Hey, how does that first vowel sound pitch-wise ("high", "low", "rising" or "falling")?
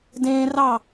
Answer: high